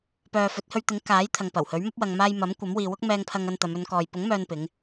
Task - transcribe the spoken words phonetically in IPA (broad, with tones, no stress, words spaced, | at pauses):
pœː˨fɵ˨˥t̚hɵ˧ɥt̪ɪ˨˥ŋ kaː˨˥j t̪ʰɐ˨ŋpɐ˨˩whɵ˨˥ɥmɐ˥p̚ wɐ˨ŋmaː˧jmɐ˨˥m kʷɐ˨˥mwiː˨wʊ˥k̚ mɛː˧ŋpʰɐ˧ŋɐ˧n t̪ɐ˨˧m ɵ˨˧nkɔː˨j pʊ˨˥ŋ mœː˧npɪ˨˧ŋ